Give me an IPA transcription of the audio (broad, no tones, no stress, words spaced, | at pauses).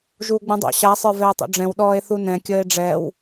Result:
ʒuːɡ͡bũdˤo̰ ɕa sˤə˞vɛe̯tˤo̰ɖ͡ʐɛ̃w ɗɔːe̯θunɛ̃ kʲəːe̯ɖ͡ʐɛw